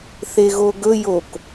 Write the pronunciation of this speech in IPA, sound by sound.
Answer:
θ e ɣ o ɡ ɵ j o k

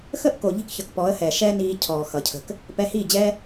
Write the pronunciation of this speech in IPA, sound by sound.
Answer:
x ə˦ ʔ k o˨ ʎ i̤˦ k ç ʌ˨ k p ɔ˨˦ ə̯ h ɛː˨ ʃ ɛ˦ n iː˧ cʰ ɔː˨ x ʌ˨ cʰ ə̤˧ k | p ɛ˧ h iː˦˨ d͡ʑ ɛ˦

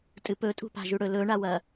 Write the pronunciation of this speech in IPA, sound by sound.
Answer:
tʼ ɨ p ɵ tʼ ṳ p a̤ ʒ ʉ ɽ ɵ l ɵ ɳ a w ɐ

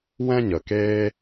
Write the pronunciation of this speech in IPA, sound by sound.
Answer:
w ɛ̃˦ ɲ ə˨ k eː˦

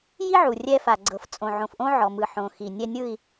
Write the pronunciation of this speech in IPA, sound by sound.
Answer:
j i˦ ʕ u˨ rʲ ɛ˦ f a˨ ɡ͡ǀ ɤ˨ f t͡sʼ õ˨ ʕ õ˨ f ʔ õ˦ ʕ ɔ˨ m ɯ˨ ħ õ˨ x i˨ nʲ ɛ˦ nʲ ɯ˦˨ i̯

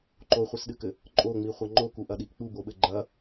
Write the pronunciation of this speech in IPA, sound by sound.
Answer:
ǃ o χʷ ɨ s ɗ ɨ k ɘ | ǃʼ o ŋ͡m i χʷ ɐ ŋ͡ǃ o k u ʔ ɐ ɗ i ʔ k͡p u b o ɓ ɘ ɡ͡ǃ ɐ

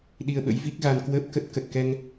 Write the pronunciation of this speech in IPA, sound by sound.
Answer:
ɗ i˧ ə̯ ɓ ə̰˧˥ j v i˦˥ k̚ ɣ a˧ n k w əː˦˥ p̚ k ə˦˥ t̚ k ə˨˩ t̚ k ɛ˧ ŋ

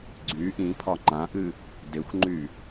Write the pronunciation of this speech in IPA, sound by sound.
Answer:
ɡ͡ǀ y ʔ ĩ pʰ ɒ ŋ͡ǃ ã ʔ ɨ | d e xʷ ŋ͡ǃ y

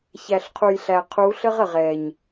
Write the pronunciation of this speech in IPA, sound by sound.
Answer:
ç æ˨ ɬ qʰ u˨ j ɬ æ˨ qʰ u˨˦ ɬ ə˦ ʁ ə˨ ʁ ɛ˨ ɲ

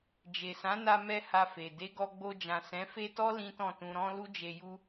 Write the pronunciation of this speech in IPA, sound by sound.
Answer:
d͡ʒ e˨ s ã˨˦ n a˧ m ɛ˧ h a˧ f e˨ d e˨˦ ɡ ɔ˧ ɡ͡b o˧ d͡ʒ ã˨ s ɛ̃˨˦ f e˦ t ɔ˦ l ĩ˦ t ɔ̃˦˨ t ũ˧ ɾ ɔ̃˦ l u˦ d͡ʒ e˧ j u˦

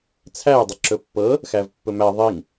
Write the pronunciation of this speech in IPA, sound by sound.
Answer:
t͡sʰ æ ə̯ dˤ ə ǁ ɵ pː ɤ | x æ v pː ɵ m æ ðˤ i ŋ

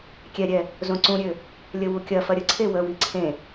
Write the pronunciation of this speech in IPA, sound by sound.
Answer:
kʲ ɛ ɾʲ ɛ | z õ ǀ ũ ɾʲ ø | lʲ ə w u kʲ ɐ f ɐ ɾʲ ə ǀʰ e w ə w i ǀʰ ẽ

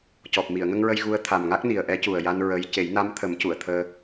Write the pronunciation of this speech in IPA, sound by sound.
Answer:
c ɔ˨˩ p̚ m i˨˩˨ ə̯ ŋ ə˧ ŋ ɹ ə˧ j ɣ u˧˥ ə̯ t̪ʰ a˨˩ m ŋ a˦˥ k̚ n i˨˩ ə̯ ʔ ɛ˧˥ c u˨˩ ə̯ j a˧ n ɹ ə˧˥ j c e˨˩˦ j n a˧˥ m t̪ʰ ə˨˩˦ m c u˨˩˨ ə̯ t̪ʰ əː˧

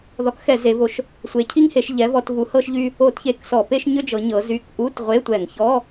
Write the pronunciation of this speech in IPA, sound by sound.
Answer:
ð ɔ˨˦ k x ɛ˧˩˧ z e˨˦ v o˨˦ ʃ | sʷ e˨˦ cʰ i˥ ŋ h e˨˦ ʃ ʎ ɛ˨˦ v ɔ˧˩˧ t v u˨˦ h ɤ˥ ʃ ʎ y˥ | o˧˩˧ t ç e˨˦ k s ɔ˧˩˧ p e˥ ʃ ɲ ʏ˥ d͡ʒ ɤ˨˦ ɲ ɤ˨˦ z y˧˥˧ k ʔ u˧˥˧ t ʁʷ e˧˥˧ tʷ ɛ˧˩˧ ŋ ç ɔ˧˥˧

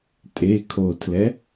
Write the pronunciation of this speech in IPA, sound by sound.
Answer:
tʼ e kʰ o tʰ l ɛ

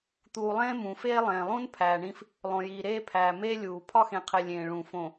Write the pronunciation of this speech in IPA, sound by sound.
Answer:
t̪ uː˨ lˠ ẽː˦ m ũ˨ f eː˦ lˠ ẽː˨ lˠ ũ˦ n pʰ æː˨ ɳ ĩ˦ f | lˠ õ˨ j iː˨ ɾ eː˦ pʰ æː˨ m eː˦ lʲ uː˨ pʰ ɒ˦ x ẽ˨ qʰ e˨ lʲ ẽː˨ ɭ ũ˨ f õ˨

